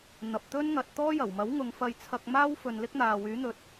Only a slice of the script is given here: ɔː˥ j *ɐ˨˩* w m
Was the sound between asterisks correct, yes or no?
yes